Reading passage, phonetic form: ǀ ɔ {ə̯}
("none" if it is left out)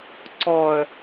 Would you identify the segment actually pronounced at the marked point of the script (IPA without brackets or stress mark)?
ə̯